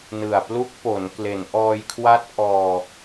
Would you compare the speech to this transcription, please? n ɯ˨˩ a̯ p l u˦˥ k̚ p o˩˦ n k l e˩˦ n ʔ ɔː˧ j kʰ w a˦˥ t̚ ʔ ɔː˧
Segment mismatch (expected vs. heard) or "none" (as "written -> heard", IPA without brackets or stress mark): none